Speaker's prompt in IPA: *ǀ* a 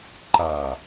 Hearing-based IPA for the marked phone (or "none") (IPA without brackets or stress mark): ǃ